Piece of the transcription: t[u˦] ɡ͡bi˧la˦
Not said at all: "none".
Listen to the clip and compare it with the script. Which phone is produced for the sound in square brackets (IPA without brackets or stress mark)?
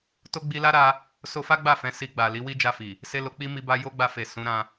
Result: o˦